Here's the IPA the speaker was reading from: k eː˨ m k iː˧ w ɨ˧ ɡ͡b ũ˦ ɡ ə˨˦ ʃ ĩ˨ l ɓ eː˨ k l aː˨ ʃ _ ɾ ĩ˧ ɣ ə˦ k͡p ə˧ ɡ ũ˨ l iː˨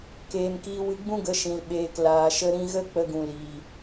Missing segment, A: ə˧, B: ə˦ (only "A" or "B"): A